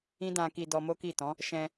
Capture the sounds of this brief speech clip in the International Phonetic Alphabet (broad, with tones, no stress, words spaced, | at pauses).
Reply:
ĩ˦dã˧ki˧ dɔ˧mo˦ki˦˨tɔ̃˨˦ | ʃɛ̃˧